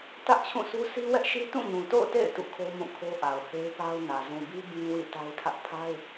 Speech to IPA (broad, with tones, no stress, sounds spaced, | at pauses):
t ä˦ ʔ t͡ɕʰ ũ˦˨ sʰ u˦ sʰ i˦ w ɛ˦ ʔ ʃ i˦ t ũ˦˨ ɲ ũ˨ t o̰˦˨ ʊ̯ t ḛ˦˨ ɪ̯ t ṵ˦˨ kʰ o˦ m ũ˦˨ kʰ o˦ ʔ a˨ ʊ̯ h e˦ ɪ̯ p a˦ ʊ̯ n ä˨ z ũ˨ b i˦ b ĩ˦ w ḭ˦˨ t a˦ ɪ̯ tʰ ä˦ ʔ pʰ a˦ ɪ̯